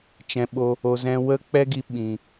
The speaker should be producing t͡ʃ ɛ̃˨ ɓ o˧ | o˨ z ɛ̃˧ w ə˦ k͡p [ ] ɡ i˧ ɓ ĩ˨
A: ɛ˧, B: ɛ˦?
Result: B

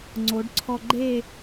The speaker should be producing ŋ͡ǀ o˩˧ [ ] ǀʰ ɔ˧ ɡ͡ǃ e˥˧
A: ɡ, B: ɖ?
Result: B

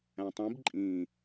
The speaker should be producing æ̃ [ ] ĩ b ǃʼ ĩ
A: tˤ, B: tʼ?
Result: A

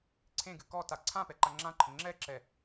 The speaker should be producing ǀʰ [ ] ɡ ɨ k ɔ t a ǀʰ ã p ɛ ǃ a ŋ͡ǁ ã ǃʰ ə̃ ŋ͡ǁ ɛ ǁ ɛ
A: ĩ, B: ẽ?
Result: B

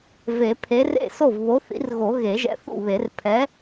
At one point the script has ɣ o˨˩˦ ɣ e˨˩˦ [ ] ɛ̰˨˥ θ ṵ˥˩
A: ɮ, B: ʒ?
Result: B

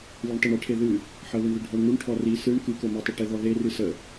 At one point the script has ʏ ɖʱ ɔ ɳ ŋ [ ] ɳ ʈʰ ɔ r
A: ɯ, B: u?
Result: B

